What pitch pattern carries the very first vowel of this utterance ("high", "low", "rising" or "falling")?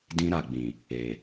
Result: high